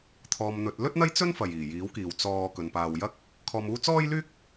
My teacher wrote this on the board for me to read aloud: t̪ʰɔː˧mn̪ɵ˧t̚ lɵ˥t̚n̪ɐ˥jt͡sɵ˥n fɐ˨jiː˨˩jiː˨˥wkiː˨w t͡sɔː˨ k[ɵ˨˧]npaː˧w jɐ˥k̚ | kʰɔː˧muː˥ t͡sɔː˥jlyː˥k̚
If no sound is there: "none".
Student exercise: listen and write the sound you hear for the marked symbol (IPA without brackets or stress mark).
ɵ˨˧